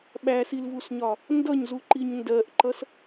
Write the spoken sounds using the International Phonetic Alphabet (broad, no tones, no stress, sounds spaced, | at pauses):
ɓ æ s i l v u s ɲ ɒ | n d ʌ ɲ z u ǃ i ɲ n d ɜ ʔ ǃ ʌ s